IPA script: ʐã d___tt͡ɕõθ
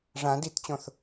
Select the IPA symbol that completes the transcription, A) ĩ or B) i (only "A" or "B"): B